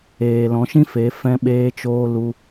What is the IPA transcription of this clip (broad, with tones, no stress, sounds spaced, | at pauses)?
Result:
eː˨ l ɔ̃˨˦ ʃ ĩ˦ f e˨˦ f ɛ̃˧ ɓ eː˧ t͡ʃ oː˧ l u˧